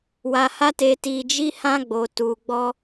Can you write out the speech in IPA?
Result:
wa˧ha˦te˧ ti˧d͡ʒi˦ hã˦ ɡ͡bo˧tu˧ɡ͡bɔ˦

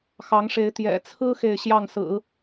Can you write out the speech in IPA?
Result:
xɑ˧˥ŋʂe˧˥ɪ̯ t̪jɛ̰˨˩t͡sʰɹ̩˥ xe˥˧ɪ̯ɕjɑ˥˩ŋsɹ̩˨˩˦

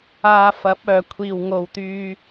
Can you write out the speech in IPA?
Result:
aː˧fɐ˨˥p̚œː˨˩ kʷʰiː˨˩wŋo˨˩wt̪yː˨

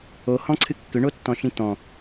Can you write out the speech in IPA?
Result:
ohɔ̃ǀʰɨ kːʏɳotːɔ̃ʃĩ t̪ɔ̃

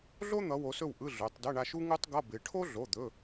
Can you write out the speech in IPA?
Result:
ɮo˥n̪ʌ˨˦ wo˨˦sɵ˦˨w ʔɯ˧˥˧ɮɵ˩˧˩tˤdə˧˥˧ ɳa˦˨ʃu˥ ŋu˥tˤɡʌ˧˥˧bɪ˨˦ ʈʰo˥ɮo˩˧˩d̪ɵ˩˧˩

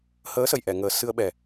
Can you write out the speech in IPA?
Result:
həː˧˥sə˨˩˨jʔɛ˨˩˨ŋəː˨˩˦ sɨ˧ə̯ɓɛ˨˩

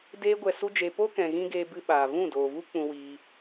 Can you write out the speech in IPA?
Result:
deː˦ɡʷɛ˧su˦d͡ʒe˧ po˦kɛ̃˨ɣĩ˧ ɡeː˧bɨ˧ ɓaː˨vũ˦˨doː˨vu˦ k͡pũ˧wiː˧

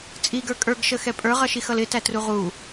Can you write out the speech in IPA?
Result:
t͡sʼiɡə˞ kʼə˞ɡʃəxɛ pʼə˞ʁʌʃixʌl ɪtætru ʁu

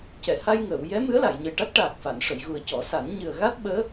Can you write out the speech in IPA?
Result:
cɛ˨˩˨ha˧jŋəː˨˩˨w jɛ˧˥ mɨ˧˥ə̯la˨˩˨jɲə˨˩jʈa˦˥t̚ ʈaː˨˩k̚fa˨˩˨nʂə˨˩˨jɣu˨˩ə̯ cɔ˨˩˦ sa˨˩˦n ɲɨ˨˩ə̯ɣa˦˥t̚ɓəː˧˥

